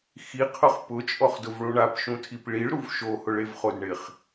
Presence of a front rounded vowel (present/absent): absent